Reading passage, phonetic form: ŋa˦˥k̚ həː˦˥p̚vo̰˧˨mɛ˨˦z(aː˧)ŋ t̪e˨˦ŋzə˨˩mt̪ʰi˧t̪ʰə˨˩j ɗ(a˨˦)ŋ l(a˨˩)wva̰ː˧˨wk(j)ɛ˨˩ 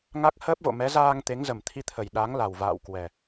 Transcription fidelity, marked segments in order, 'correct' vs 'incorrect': correct, correct, correct, incorrect: w

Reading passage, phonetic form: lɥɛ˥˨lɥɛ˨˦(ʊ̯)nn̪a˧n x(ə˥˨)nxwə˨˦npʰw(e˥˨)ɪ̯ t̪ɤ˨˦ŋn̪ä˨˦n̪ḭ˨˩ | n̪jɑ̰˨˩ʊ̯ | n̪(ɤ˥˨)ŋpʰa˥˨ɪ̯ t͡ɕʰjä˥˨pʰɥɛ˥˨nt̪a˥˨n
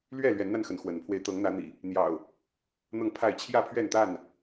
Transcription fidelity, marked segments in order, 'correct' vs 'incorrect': incorrect: none, incorrect: ə˨˦, incorrect: e˧, correct

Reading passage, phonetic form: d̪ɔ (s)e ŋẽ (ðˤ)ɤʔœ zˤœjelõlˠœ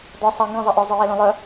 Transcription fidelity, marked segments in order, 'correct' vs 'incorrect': incorrect: sˤ, correct

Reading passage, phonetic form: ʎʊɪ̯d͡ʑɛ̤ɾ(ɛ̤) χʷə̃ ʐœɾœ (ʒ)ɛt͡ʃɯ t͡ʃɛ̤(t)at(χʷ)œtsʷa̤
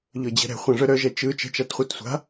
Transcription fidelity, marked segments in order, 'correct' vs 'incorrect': correct, correct, incorrect: t͡ʃ, correct

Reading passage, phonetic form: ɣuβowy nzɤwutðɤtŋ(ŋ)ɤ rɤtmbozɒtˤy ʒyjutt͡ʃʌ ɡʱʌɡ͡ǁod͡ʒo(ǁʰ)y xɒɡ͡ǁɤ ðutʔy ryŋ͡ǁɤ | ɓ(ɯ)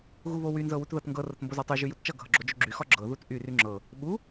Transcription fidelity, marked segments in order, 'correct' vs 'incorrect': incorrect: ɡ, incorrect: ɡ͡ǁ, incorrect: u

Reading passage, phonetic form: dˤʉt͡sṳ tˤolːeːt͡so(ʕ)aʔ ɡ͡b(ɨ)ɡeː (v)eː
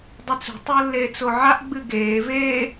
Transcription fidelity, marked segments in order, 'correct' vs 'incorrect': correct, correct, correct

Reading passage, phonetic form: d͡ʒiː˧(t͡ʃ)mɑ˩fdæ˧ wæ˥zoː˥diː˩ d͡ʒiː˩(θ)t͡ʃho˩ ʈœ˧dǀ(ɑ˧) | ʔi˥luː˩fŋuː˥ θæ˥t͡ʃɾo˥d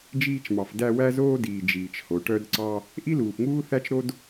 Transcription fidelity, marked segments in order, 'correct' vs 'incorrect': correct, incorrect: none, correct

